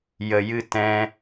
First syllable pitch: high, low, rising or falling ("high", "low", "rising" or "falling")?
low